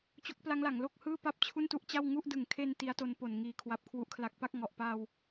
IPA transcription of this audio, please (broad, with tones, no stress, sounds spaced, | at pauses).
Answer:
t͡ɕ o˦˥ k̚ p l a˦˥ ŋ l a˩˦ ŋ l o˥˩ k̚ h ɯː˥˩ p a˥˩ p̚ t͡ɕʰ u˥˩ n t u˥˩ ʔ t͡ɕ a˥˩ w ŋ u˥˩ ʔ d ɯ˨˩ ŋ kʰ e˧ n t i˦˥ a̯ t o˦˥ n p o˨˩ n ŋ iː˧ kʰ w a˦˥ p̚ kʰ w u˦˥ ʔ kʰ l a˦˥ k̚ p a˥˩ k̚ ŋ ɔ˨˩ ʔ p a˧ w